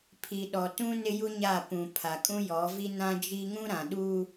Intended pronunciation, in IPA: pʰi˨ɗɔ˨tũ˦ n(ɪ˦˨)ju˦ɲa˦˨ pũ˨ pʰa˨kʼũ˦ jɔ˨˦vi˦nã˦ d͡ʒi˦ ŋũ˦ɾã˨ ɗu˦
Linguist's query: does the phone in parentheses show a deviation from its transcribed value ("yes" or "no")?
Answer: yes